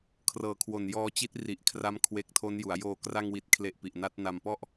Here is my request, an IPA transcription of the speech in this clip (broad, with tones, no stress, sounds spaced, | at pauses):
kʰ r ɤː˨˩ kʰ w o˨˩ n j ɔː˧ t͡ɕ i˦˥ t̚ r i˨˩ ʔ kʰ r a˦˥ m kʰ w e˨˩ k̚ tʰ o˦˥ n j u˩˦ a̯ j oː˧ k r a˧ ŋ w i˨˩ t̚ kʰ l e˨˩ ʔ p i˨˩ ʔ n a˦˥ t̚ n a˧ m p ɔ˥˩ ʔ